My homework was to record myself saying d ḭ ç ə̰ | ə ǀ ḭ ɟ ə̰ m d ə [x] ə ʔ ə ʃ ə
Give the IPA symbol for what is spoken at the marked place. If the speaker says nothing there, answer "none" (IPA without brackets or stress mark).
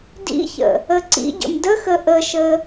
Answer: x